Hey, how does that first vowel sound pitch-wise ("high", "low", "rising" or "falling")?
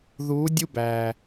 rising